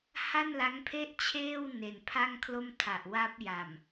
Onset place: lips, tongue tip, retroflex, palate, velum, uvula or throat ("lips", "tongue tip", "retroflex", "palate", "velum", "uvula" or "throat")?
throat